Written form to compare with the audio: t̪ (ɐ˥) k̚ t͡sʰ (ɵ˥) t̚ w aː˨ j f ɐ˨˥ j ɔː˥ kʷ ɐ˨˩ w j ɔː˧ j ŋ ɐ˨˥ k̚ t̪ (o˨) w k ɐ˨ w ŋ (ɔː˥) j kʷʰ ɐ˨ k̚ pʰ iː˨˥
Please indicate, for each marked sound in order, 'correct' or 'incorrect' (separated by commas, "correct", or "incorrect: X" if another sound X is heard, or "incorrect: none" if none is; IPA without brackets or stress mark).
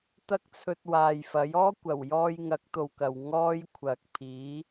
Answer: correct, incorrect: ɵ˧, incorrect: o˧, correct